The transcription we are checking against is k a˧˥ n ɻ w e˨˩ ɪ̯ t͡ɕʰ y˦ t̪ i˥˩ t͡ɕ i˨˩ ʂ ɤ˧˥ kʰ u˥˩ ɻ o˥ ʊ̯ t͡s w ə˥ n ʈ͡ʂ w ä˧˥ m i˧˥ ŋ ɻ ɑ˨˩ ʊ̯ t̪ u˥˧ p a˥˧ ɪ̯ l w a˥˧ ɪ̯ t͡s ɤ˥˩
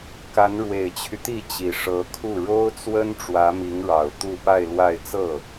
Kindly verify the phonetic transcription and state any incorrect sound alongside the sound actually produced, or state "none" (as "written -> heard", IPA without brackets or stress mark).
none